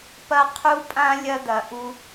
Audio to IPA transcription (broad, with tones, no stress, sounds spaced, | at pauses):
p ɐ˦ qʰ u˦ pʼ ã˦ lʲ ɐ˦ d̪ ɐ˨ ʔ u˧